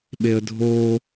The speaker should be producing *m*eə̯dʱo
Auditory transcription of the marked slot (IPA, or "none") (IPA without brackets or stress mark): ɓ